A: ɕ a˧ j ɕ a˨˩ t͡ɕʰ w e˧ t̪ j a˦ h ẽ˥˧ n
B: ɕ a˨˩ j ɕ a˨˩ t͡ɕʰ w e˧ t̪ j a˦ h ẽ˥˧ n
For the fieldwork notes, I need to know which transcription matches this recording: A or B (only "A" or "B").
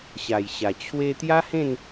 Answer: B